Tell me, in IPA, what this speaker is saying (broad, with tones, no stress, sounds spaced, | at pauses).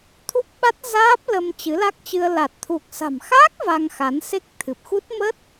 t̪ʰ u˦˥ p̚ ɓ a˦˥ t̚ z aː˦˥ p̚ l ə˧ m t͡ɕ ɨ˨˦ l a˦˥ k̚ t͡ɕ ɨ˧ ə̯ l a˨˩ t̚ t̪ʰ u˨˩ k̚ s a̤˨˩ m x aː˦˥ k̚ v a˧ ŋ x a˨˦ n s e˦˥ k̚ t̪ʰ ɨ˨˩ p̚ x u˦˥ t̚ m ə˦˥ t̚